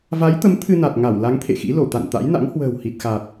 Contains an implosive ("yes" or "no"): no